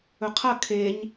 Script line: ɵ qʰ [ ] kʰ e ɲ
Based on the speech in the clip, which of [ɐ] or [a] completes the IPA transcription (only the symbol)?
ɐ